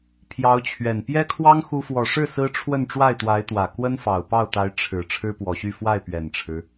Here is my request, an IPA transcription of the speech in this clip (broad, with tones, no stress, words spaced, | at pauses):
pʰjɑ˧˥ʊ̯t͡ɕʰɥɛ˨˩n pjɛ˥kʰwɑ˥ŋ xu˥ fwɔ˨˩ʂɻ̩˥˩ sɹ̩˥ʈ͡ʂʰwə˥˧n ʈ͡ʂwa˥˩ɪ̯t̪wa˧˥ɪ̯t̪wä˨˩ kwə˥nfɑ˨˩ʊ̯pɑ˥˩ʊ̯t̪a˧˥ɪ̯ ʈ͡ʂʰɻ̩˨˩ ʈ͡ʂʰɻ̩˥pwɔ˨˩ɕy˥˧ fwa˥˩ɪ̯pɥɛ˨˩nʈ͡ʂʰɻ̩˦